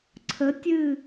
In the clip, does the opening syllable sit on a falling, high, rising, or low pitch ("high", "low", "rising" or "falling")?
rising